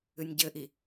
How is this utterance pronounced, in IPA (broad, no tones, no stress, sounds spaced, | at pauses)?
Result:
ɨ nʲ ɟ ɘ ʔ i